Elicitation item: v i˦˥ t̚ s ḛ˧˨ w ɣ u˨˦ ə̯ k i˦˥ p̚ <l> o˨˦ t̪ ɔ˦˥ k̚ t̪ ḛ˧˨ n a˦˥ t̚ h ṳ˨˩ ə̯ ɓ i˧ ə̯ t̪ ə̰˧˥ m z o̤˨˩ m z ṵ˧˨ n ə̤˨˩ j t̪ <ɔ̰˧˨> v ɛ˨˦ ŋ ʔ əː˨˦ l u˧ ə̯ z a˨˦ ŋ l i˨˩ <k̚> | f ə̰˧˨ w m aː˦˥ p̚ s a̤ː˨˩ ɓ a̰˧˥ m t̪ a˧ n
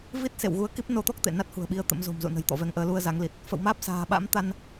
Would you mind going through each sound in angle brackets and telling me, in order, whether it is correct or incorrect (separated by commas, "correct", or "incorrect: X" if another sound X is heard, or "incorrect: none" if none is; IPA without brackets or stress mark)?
incorrect: n, correct, incorrect: t̚